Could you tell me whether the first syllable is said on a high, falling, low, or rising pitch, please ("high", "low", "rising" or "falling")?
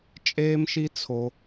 high